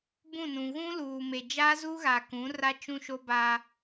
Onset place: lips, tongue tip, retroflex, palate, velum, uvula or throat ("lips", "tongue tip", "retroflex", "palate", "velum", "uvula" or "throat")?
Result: lips